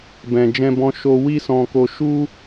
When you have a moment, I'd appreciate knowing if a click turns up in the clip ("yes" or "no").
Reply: no